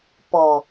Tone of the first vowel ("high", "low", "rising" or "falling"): low